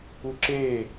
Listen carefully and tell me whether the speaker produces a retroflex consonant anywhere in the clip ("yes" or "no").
no